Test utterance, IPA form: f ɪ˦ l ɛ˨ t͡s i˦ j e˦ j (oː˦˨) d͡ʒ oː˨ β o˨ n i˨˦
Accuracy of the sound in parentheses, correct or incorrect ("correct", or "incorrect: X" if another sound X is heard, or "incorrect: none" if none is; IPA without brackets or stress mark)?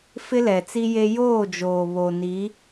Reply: correct